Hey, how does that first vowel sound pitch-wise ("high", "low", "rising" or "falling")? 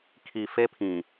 low